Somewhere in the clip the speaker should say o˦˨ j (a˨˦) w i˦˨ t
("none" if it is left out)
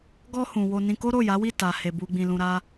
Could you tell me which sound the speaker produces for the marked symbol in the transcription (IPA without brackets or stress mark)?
a˨˦